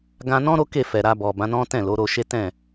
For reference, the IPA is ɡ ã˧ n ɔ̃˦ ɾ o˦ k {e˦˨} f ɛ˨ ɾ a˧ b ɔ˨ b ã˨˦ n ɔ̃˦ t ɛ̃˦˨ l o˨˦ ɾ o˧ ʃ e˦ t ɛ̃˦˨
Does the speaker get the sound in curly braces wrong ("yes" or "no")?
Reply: no